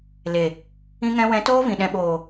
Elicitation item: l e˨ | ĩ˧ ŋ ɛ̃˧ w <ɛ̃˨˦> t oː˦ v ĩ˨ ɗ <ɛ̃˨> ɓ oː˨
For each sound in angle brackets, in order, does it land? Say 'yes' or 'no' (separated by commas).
yes, yes